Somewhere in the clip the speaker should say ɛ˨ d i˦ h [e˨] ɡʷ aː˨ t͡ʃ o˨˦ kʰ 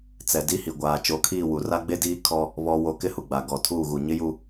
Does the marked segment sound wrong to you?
yes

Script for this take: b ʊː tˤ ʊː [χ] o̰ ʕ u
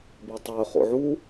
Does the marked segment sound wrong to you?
no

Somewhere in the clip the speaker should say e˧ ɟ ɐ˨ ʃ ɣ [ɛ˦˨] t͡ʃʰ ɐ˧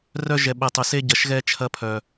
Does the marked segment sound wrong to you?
yes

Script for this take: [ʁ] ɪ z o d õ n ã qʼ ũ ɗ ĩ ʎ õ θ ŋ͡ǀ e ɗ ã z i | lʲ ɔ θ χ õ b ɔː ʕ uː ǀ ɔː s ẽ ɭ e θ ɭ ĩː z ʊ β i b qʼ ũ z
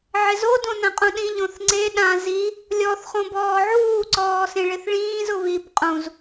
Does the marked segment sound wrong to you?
yes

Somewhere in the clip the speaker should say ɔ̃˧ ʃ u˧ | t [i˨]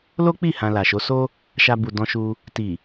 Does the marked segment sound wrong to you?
no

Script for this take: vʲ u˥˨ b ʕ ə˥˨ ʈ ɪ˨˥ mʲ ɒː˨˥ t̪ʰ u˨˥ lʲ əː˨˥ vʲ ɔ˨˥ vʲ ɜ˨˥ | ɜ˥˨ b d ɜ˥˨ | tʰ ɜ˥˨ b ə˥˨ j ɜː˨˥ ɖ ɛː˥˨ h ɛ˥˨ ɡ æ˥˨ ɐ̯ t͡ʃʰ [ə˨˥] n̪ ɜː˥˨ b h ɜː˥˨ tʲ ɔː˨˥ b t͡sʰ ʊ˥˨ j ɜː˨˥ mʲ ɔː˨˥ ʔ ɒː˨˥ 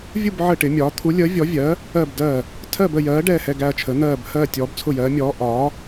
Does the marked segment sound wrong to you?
no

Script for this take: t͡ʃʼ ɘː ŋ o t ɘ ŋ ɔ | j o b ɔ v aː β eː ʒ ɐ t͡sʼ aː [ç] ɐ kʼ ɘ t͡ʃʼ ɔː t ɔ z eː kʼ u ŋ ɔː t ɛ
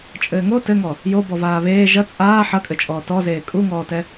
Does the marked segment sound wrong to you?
yes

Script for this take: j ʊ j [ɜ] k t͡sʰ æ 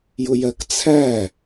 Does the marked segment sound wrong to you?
no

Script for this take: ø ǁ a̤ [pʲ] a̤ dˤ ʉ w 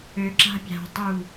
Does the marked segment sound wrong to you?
no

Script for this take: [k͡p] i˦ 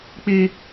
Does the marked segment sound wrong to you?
no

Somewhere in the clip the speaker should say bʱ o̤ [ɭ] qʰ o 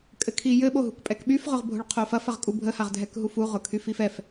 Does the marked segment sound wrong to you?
no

